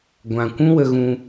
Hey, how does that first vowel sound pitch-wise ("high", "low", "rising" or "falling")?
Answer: low